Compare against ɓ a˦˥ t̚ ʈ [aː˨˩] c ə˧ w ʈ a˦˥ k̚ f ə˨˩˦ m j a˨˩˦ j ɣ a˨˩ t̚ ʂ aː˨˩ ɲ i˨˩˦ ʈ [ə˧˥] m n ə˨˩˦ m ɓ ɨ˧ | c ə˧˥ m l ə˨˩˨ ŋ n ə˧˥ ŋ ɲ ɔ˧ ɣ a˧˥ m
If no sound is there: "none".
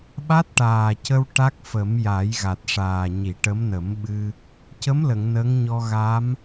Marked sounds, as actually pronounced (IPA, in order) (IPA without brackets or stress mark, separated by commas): aː˨˩, ə˧˥